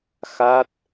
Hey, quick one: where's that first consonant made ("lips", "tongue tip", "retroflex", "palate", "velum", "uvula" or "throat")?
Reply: velum